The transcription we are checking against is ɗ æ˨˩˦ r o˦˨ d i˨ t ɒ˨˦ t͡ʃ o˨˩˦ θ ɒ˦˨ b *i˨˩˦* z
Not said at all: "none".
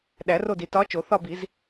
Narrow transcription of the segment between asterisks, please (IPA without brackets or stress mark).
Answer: i˨˩˦